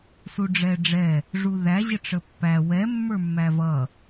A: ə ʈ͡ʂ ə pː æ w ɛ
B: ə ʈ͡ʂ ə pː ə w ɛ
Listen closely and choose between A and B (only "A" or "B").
A